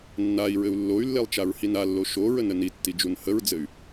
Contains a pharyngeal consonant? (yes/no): no